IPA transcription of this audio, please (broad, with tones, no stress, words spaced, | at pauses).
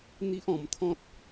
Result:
n̪i˦ʔɔ̃˧mt̪ʰɔ̃˦t̚